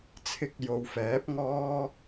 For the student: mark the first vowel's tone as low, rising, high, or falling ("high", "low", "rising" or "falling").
rising